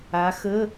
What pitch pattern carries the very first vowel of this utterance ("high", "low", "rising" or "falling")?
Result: rising